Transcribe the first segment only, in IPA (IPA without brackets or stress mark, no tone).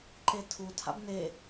ǃ